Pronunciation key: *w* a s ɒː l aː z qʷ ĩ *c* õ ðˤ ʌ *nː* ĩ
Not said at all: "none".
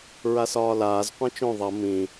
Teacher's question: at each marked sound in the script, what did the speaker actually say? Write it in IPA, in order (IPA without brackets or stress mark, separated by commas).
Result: ɹ, t͡ʃ, m